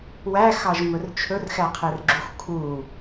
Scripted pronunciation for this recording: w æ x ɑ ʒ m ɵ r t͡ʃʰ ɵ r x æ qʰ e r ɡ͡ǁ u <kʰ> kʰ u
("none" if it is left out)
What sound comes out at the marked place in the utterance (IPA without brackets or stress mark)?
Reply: x